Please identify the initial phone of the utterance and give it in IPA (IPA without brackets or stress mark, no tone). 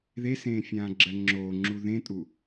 ð